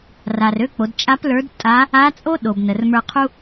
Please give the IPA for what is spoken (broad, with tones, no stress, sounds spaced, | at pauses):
r a˩ r ø˧ k͡p o˩˧ d t͡ʃʼ a˧˥ p l ə˞˧˥ d tʼ a˧˥ | a˧˥ t͡sʼ o˥ ɗ o˩ b n ə˩ r m ə˞˧ qʰ u˥